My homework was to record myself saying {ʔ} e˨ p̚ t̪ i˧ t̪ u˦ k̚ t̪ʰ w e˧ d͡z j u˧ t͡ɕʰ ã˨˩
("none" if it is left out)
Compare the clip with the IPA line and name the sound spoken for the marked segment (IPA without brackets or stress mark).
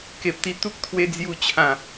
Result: k